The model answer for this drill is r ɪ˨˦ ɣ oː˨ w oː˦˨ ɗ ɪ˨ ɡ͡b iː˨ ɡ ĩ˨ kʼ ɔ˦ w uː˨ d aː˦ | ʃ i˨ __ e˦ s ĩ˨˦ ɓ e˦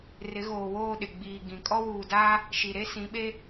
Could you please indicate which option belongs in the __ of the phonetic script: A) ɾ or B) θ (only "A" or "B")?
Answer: A